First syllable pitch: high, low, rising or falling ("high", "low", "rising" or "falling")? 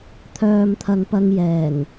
low